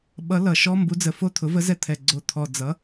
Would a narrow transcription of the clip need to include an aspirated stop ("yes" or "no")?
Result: yes